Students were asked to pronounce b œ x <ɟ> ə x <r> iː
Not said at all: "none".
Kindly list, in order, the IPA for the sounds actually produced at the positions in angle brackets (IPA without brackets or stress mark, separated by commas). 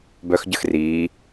ɟ, r